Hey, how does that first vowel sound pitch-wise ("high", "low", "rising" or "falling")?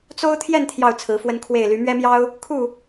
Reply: high